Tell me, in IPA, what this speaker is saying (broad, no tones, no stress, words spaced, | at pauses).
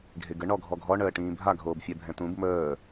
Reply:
ɡʱeɡə ɳɔɡʱɔɡʱɔɳ əːʈĩːbʱa ɡʱoːbfʲɛbʱɛ̃tũb məː